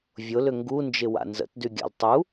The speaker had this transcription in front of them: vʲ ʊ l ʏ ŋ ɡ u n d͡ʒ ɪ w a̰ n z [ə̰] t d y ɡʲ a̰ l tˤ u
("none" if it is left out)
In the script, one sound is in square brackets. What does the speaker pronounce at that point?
ə̰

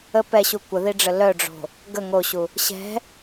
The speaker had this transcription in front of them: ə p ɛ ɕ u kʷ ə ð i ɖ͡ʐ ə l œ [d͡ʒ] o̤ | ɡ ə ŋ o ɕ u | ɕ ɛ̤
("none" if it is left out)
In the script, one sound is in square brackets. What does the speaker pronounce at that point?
ɖ͡ʐ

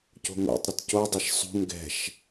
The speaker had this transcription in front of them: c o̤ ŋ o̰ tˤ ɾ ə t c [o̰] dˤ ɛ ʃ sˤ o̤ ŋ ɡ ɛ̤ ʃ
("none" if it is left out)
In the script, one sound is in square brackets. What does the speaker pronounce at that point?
o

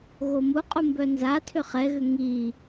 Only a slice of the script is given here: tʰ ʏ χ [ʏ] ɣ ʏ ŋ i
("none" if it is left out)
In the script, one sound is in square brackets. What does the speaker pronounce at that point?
ɛ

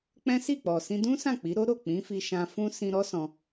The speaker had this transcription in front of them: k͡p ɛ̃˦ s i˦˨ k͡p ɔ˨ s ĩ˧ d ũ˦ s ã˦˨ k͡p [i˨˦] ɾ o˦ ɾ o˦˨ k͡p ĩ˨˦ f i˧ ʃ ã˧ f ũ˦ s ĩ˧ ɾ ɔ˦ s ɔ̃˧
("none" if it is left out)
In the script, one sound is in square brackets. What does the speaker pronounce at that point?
i˨˦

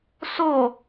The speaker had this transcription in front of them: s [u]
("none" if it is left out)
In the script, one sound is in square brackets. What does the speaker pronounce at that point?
o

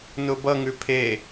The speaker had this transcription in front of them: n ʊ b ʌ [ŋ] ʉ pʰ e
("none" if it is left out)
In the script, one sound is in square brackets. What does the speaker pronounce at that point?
ŋ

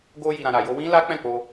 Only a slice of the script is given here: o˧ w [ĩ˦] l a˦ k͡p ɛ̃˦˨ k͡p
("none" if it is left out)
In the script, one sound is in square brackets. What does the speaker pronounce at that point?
ĩ˦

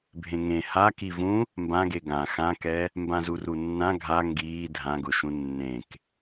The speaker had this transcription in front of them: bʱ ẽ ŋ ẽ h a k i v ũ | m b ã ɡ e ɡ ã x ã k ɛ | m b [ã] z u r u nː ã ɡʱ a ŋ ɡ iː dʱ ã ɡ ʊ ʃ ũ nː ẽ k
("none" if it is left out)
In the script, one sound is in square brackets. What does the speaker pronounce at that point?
ã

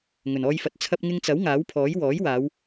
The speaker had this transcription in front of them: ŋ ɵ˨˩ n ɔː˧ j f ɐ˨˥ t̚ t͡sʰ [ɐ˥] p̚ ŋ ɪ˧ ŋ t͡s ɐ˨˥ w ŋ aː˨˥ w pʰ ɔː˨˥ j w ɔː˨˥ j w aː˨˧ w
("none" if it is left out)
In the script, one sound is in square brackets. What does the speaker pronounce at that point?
ɐ˧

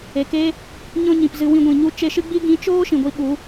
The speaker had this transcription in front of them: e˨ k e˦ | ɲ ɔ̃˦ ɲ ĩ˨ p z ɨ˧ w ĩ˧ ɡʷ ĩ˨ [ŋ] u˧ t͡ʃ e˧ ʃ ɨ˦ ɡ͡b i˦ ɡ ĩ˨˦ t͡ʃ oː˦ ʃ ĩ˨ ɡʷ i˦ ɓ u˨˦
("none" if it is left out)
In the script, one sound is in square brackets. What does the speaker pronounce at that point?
ɲ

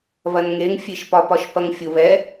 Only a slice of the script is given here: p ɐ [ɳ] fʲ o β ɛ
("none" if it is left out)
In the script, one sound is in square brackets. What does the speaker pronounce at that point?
ŋ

